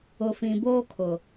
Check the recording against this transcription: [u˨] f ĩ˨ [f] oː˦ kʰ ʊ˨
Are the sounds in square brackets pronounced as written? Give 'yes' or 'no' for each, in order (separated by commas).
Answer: no, no